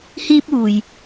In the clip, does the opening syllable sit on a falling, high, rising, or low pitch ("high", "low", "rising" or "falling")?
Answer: high